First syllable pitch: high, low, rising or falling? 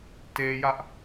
high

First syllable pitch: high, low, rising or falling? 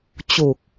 low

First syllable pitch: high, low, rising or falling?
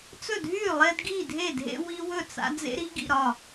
falling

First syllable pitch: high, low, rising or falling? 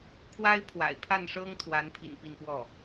high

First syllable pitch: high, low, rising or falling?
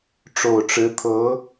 low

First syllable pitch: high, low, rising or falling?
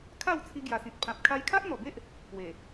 falling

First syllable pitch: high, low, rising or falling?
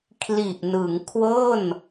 low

